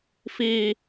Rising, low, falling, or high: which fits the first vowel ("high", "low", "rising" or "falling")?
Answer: high